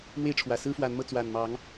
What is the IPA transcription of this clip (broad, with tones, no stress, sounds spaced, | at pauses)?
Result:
m w e˥˨ ɪ̯ ʈ͡ʂʰ w ä˨˩ s ɹ̩˦ f w a˨˦ n m ɤ˧ t͡s w a˨˩ n m ɑ˨˦ ŋ